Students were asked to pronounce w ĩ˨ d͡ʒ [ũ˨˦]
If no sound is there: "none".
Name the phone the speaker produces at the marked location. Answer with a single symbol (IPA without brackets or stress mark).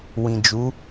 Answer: u˨˦